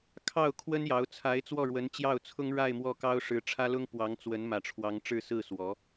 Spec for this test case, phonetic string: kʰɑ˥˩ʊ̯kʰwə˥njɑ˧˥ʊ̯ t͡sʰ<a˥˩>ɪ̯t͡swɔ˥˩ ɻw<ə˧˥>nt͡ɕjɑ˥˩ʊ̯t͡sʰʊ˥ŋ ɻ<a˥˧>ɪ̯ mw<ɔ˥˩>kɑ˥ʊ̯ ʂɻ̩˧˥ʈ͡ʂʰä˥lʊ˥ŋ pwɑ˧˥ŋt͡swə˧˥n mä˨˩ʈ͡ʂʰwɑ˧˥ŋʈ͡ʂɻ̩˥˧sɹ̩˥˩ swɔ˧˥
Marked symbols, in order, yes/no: no, yes, yes, yes

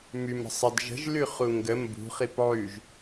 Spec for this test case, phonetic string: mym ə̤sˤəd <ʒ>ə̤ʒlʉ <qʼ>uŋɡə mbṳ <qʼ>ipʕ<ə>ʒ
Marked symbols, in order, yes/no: yes, no, no, no

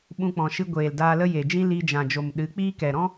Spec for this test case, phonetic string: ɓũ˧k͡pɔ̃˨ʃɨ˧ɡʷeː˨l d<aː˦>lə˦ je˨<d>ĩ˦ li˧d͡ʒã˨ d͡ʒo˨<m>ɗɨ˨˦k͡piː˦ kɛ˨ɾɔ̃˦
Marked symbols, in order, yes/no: no, no, yes

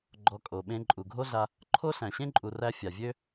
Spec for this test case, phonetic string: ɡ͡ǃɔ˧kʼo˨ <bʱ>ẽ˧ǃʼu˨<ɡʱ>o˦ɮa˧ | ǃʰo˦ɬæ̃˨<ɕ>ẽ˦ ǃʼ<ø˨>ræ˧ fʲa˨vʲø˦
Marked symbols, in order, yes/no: no, yes, yes, no

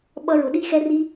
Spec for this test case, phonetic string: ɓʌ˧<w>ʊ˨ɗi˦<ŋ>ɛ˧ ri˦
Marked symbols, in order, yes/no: no, no

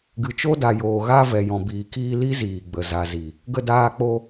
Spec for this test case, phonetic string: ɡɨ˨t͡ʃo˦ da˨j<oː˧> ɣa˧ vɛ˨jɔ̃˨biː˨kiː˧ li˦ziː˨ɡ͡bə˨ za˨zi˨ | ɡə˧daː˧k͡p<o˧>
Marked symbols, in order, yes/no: no, yes

